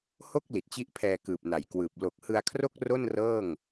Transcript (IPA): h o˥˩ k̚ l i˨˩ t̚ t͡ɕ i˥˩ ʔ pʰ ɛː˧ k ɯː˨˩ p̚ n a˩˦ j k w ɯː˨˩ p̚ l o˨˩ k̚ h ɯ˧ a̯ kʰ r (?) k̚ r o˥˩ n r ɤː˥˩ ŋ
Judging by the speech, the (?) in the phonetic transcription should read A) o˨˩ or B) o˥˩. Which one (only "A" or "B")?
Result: B